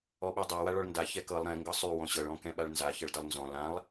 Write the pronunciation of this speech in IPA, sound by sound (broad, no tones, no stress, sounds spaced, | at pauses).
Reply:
ɔ ɓ ɤ dˤ a w a ɭ ɔ ɭ n d a ç ɛ k ɤ lˠ ɾ ɛ̃ ŋ ɡ ɤ sˤ y w ɔ̃ ɕ ɤ ɭ ɔ̃ k ɛ̃ ɓ a ɭ n z a ç ʌ ɭ d ʌ lˠ n z ɔ̃ l ã lˠ